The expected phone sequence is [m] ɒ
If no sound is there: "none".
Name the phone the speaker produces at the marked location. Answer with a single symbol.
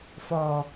f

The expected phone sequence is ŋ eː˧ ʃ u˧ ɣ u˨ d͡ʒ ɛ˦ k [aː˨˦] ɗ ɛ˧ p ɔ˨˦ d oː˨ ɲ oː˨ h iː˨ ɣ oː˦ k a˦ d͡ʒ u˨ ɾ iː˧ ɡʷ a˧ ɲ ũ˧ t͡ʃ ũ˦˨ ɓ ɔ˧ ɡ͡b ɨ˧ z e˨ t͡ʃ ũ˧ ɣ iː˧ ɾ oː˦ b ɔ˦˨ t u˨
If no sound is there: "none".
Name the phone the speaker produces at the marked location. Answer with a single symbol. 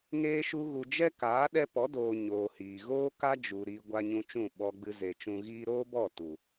aː˨˦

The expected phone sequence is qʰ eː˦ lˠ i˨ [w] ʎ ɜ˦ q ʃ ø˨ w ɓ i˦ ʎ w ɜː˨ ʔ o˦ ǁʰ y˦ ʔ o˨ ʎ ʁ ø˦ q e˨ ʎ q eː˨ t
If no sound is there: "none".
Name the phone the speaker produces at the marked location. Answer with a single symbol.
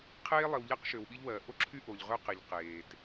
w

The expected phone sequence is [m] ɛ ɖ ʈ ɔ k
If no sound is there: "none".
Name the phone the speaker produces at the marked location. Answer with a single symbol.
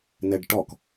n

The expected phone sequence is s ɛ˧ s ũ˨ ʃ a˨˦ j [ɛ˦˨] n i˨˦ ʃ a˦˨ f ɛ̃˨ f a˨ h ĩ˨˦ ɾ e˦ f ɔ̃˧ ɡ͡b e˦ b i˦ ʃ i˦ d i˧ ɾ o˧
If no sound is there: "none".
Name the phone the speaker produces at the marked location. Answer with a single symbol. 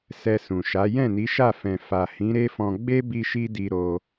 ɛ̃˦˨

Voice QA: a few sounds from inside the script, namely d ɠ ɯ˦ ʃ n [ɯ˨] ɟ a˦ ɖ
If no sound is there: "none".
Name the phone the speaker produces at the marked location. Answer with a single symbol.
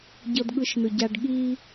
ɯ˨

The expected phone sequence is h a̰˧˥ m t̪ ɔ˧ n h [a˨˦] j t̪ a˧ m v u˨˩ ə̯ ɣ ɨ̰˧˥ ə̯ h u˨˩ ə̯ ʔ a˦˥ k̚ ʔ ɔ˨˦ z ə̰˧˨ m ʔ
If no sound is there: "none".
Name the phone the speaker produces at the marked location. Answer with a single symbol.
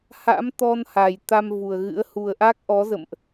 a˨˩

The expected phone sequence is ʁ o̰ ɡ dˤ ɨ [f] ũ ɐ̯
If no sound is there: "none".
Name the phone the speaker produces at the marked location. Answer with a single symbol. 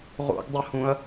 h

